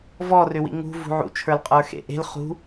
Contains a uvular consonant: yes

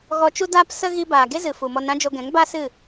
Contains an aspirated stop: no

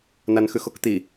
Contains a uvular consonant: no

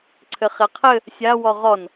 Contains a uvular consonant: yes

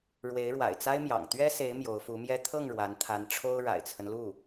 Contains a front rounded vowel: no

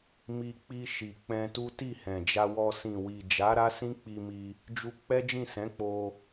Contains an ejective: no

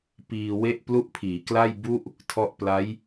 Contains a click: no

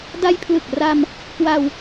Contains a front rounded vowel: no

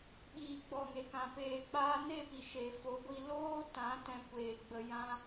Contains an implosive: yes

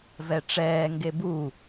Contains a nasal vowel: no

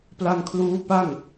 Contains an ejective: no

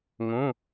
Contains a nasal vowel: yes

